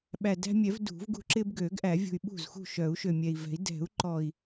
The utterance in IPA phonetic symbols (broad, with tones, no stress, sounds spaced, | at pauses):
ɓ æ˨˩ d æ̤˦ mʲ ɛ˨˩˦ v d ṳ˨˩˦ v ɡ ṳ˦ ǁ ɪ˦ b ɡ ø˨˩˦ ɡ ʔ æ˨˩˦ vʲ ṳ˨˩ y̯ ɓ ṳ˥˩ z x ṳ˥˩ ʃ œ˨˩˦ u̯ ʃ ø˨˩ mʲ ɛ˨˩ i̯ v ɛ̤˨˩˦ i̯ d ɛ̤˨˩˦ u̯ ǃ ɔ˨˩ i̯